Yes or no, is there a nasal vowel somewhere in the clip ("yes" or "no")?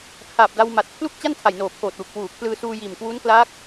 no